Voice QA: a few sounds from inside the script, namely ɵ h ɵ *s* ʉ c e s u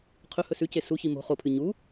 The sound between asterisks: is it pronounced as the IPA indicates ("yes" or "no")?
yes